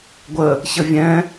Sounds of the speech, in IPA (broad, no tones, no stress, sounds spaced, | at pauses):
ɡʷ ə | ç ə vʲ ɛ̃